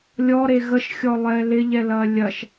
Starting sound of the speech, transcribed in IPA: lʲ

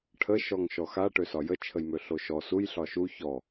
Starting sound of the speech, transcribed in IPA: ʈʰ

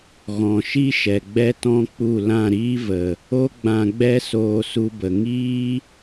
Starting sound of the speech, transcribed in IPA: ɣ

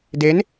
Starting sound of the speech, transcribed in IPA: d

